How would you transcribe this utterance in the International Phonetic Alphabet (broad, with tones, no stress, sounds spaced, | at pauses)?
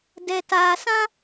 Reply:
d ɛ˨ t aː˨ s ã˦